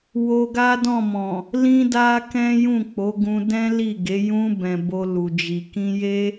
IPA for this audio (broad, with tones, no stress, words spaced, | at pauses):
wo˧ɡa˦dɔ̃˦˨mɔ̃˨ | lĩ˦da˦kɛ̃˦ jũ˦˨k͡po˨˦ɡũ˧ dɛ̃˦li˦˨ɡe˨˦ jũ˧bɛ̃˨ bo˧lu˨d͡ʒi˨ kĩ˧je˦